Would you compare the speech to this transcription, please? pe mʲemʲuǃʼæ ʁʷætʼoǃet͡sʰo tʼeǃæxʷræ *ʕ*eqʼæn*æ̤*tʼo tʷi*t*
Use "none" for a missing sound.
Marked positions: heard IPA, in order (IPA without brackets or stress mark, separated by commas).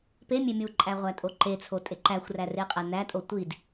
r, æ, d